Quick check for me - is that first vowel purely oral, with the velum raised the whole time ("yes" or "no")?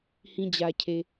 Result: no